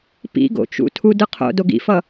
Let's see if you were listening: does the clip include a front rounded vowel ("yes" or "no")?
no